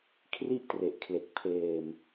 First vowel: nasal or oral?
oral